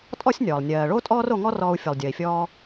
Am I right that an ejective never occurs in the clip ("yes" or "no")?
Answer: no